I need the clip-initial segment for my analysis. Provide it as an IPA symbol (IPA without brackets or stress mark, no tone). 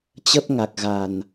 t͡ɕ